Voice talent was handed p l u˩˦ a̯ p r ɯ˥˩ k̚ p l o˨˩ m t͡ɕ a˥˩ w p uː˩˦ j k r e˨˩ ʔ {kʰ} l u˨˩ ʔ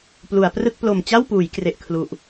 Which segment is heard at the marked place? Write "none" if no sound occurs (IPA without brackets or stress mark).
kʰ